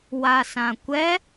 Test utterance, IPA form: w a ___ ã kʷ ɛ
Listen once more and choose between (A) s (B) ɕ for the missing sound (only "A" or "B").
A